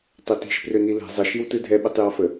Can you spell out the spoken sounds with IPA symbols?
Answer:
tˤ ɛ t i̤ ʃ p r ø n i l ɛ̤ zˤ ə ʃ i w t ɯ dʱ ɛ ɓ ɯ tˤ j ɔ f ə

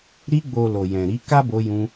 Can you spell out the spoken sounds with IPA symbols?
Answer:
ɾ i˧ ɡ͡b o˨ l o˨ j ɛ̃˨ ɾ i˨˦ k a˦ b o˧ j ũ˧

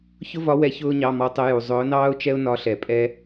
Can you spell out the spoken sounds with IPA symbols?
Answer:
ç ʊ˥ v ɒ˧˥ w ɛ˧˥ ç ʊː˥ ɲ ɑ˧˥˧ m ɔ˧˥ tˤ ə˧˥ j u˨ zˤ ʊː˧˥ n ɑː˥ ʊ̯ t͡ʃ ɛ˥ ʊ̯ n ɒ˧˥ ɬ ɛ˨ pʼ ɛ˥

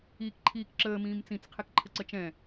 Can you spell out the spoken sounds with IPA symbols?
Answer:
iː k ǃʰ iː k ǁ əː m ĩː m t͡s ĩ t͡s qʰ ɛ k ǃʰ ə ǀ ə t͡ʃ ɛ̃

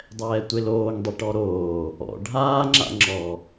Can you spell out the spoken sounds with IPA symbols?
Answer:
dˤ ɛː tʷ e l oː ŋ dˤ e ʈ ɔ ɾ oː | ɔ̰ ɖʱ aː ŋ͡ǁ a̰ ŋ͡ǁ ɔ

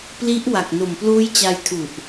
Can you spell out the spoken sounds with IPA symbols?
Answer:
p l i˦˥ ʔ w a˨˩ k̚ n o˨˩ m p l uː˦˥ j t͡ɕ a˧ j tʰ u˨˩ ʔ

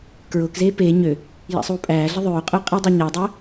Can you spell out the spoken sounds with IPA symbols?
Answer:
k ɹ ʊː k z eː p eː ɲ ø | j a̰ sˤ uː pʼ æː ɮ ə ðˤ øː qʼ ʊː qʼ i dˤ a ɲ æ dˤ əː

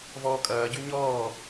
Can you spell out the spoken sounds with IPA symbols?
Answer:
v ɔː kʼ ɐː ɟ y ɲ ɔː

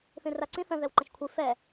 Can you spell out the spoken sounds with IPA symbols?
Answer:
θ ĩ r a ǀ ĩ θ ə̃ ð ɛ w ǃ ə̃ ʃ kʷʰ i f ɛ

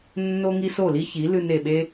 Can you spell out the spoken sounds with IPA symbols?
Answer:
nː o˥ ŋ i˥ s o˥˩ l i˥ ç i˩˥ l ɨ˧ n e˩ ɓ e˥

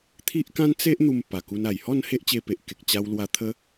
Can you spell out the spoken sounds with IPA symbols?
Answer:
t̪ʰ i˦ ʔ k ã˦ n t͡s e˦ ʔ n̪ u˧ m p a˨˩ k u˧ n a˨˩ j h ɔ˥˧ n h e˦ ʔ t͡ɕ e˧ p e˨ ʔ k e˨ k̚ t͡ɕ a˧ w l w a˧ t̪ʰ ə˦

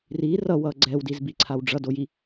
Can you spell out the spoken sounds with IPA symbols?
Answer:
r i r ʌ w ʌ ɡ͡ǀ ɛ w d i z b i ǀʰ a w ɖ͡ʐ ʌ d o j i

